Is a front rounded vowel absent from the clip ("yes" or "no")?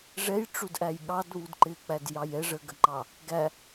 yes